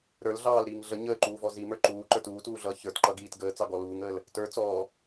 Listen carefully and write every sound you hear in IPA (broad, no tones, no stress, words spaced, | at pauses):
ɾə˞lɮɑːlɾiːŋ ɮə ɲəːǃuːvɔ zimə˞ ǃuːǃə˞t uːtuːɮʌː çə˞t ǃʌɡiːt ɡəːt͡sɑɡɔ luːŋəːl | tə˞ t͡sɔː